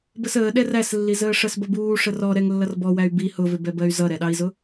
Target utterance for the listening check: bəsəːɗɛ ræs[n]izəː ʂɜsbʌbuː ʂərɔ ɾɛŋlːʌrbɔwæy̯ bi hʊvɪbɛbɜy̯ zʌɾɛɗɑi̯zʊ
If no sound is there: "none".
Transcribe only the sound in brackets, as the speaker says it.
lː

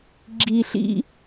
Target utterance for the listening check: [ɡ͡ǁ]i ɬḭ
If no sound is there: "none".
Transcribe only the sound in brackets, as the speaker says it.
ɡ͡ǁ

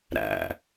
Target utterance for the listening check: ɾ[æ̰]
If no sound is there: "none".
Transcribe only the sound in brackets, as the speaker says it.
æ̰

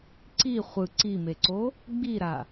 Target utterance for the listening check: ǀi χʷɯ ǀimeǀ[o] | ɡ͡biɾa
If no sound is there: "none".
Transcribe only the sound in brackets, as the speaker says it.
o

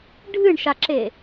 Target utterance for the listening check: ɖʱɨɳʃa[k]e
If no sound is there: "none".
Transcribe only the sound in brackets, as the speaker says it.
ǁ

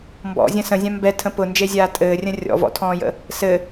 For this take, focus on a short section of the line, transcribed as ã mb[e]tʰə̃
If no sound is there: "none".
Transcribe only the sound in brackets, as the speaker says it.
ɛ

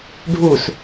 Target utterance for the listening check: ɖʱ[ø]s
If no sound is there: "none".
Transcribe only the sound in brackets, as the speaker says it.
u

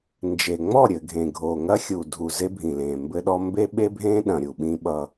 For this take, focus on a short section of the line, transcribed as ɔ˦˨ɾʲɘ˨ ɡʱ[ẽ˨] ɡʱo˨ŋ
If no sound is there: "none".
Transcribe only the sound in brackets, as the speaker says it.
ẽ˨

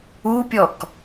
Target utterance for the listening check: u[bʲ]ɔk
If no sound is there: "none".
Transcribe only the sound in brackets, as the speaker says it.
pʲ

